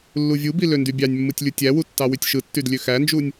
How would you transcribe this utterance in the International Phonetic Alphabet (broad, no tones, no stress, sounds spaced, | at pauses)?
lː u vʲ u b i l ø n d y bʲ ɑ nʲ mː ɯ tʲ lʲ u tʲ æ w u tː ɑ w y tʲ ʃ ɯ tː y d lʲ ø x æ n d͡ʒ u nʲ